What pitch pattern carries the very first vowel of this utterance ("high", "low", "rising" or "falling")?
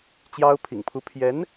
high